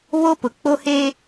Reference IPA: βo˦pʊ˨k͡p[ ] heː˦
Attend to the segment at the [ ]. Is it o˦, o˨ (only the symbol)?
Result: o˦